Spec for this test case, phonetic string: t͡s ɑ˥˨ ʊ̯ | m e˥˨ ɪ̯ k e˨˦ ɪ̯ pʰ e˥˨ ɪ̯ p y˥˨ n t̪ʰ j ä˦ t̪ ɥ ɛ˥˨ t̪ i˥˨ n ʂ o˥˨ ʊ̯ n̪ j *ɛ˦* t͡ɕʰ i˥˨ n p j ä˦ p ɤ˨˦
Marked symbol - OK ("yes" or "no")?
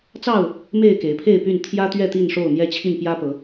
yes